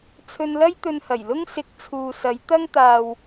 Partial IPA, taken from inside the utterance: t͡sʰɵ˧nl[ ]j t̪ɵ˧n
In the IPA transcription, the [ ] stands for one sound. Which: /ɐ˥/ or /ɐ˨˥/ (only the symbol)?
ɐ˥